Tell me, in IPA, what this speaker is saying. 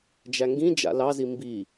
d͡ʒ æ ŋ ɡ ĩ d͡ʒ a̰ l ɑ z i m b i

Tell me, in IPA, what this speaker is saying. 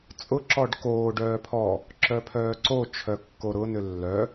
t͡sʼ ʊ ǁ ɔ ɖ k oː ɖ œː pʰ ɔ | ǁ œ pʰ œː ǀ o t͡ʃʰ œ kː o ɾ ʊ n ʏ lː œ

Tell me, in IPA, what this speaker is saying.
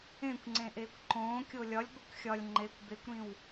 ẽ kʷ ŋ͡ǀ ẽ ʔ eː kʷ ǃ õː kʲ o lʲ ɒ lʲ ɡʷ i kʷ xʲ ɒ lʲ ŋ͡ǃ e kʷ b e kʷ ɾ ĩ w

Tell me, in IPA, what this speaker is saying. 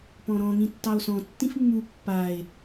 p ɔ̃ ɾ ɔ̃ ŋ ĩ tː ɑ o̯ s ɔ̃ tː ĩ f mː u pː a e̯

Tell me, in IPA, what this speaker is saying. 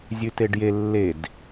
zʲ ʉ t e ɖ j e lː e d

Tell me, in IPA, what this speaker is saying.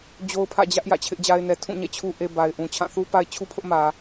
d͡ʑ o˦ ʊ̯ pʰ ä̰˦˨ d͡ʑ ä˦ ʔ j ä̰˦˨ t͡ɕʰ ɪ˦ ʔ d͡ʑ a˦ ɪ̯ n ɛ˦ tʰ ũ˦˨ ɲ ɛ̰˦˨ t͡ɕʰ u˦ ʔ e˦ b a˨ ɪ̯ ʔ ũ˨ t͡ɕʰ ã˦˨ θ u˦ p a˦ ɪ̯ t͡ɕʰ u˦ pʰ ʊ˦ ʔ m ä˨

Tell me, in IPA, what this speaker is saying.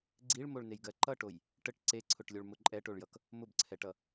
ɡ͡ǀ i ɭ m o ɭ n e j ɡ ɜ ǃ ʌ ʈ o j | ʈ ə ʈ ǀ e ǀʰ ʊ ʈ lʲ o ɭ m ʊ ǃʼ ɛ ʈ o ɭ j ʌ k | m ʊ b ǀʰ ɛ ʈ ʌ

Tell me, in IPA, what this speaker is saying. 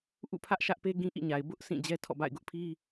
ʔ ṵ˦˨ pʰ ä˦ ʔ ʃ ä˦ ʔ p e˦ ɡ ĩ˦ ʔ ḭ˦˨ ɲ a˨ ɪ̯ b ʊ˦ ʔ sʰ ĩ˦˨ d͡ʑ ɛ˦ tʰ ɔ̰˦˨ b a̰˦˨ ɪ̯ ɡ ʊ˦ ʔ pʰ i˦

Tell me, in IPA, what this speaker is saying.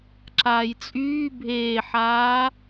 ǁ aː j t͡sʼ yː bʱ eː ħ aː

